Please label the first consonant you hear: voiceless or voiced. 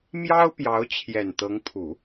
voiced